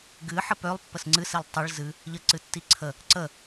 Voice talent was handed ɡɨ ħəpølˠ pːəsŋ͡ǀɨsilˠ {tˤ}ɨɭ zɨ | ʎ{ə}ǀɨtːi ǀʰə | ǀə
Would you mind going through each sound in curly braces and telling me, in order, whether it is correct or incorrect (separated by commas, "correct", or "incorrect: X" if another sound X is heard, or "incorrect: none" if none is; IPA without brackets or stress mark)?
correct, correct